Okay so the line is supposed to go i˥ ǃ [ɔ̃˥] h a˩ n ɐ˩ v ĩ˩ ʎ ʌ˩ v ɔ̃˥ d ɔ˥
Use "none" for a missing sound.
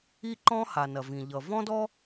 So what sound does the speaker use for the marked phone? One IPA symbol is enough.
ɔ̃˥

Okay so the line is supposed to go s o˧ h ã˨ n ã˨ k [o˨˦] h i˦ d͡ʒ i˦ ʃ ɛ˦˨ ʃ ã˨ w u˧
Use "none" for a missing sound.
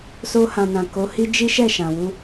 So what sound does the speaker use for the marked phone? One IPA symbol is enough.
o˨˦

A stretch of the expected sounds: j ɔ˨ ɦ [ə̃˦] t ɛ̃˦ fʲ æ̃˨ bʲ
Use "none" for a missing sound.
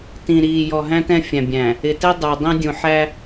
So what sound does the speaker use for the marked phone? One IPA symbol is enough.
æ̃˦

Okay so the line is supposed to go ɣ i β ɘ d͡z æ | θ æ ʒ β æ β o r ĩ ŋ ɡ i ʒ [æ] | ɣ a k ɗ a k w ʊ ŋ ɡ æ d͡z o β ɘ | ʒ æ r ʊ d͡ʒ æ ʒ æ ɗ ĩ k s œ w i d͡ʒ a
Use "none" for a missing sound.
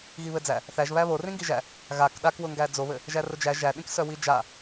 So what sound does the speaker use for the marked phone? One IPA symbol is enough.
æ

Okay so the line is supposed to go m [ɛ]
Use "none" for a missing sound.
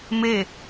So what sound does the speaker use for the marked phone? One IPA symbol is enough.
e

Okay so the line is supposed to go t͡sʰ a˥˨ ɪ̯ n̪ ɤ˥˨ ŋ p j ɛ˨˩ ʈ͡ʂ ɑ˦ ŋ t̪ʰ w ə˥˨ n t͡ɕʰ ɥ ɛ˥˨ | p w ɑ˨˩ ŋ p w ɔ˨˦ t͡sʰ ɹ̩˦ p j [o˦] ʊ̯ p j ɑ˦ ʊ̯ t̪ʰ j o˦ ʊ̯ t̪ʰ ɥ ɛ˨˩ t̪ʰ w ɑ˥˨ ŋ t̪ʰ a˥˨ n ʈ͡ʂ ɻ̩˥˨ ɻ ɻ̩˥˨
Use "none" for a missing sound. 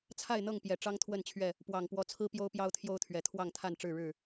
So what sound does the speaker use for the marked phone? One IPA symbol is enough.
o˦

